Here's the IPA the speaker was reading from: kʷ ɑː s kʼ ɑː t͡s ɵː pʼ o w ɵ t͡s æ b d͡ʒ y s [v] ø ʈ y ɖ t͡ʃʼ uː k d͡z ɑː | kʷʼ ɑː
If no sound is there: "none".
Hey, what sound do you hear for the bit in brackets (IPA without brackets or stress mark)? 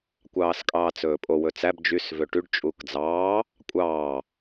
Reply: v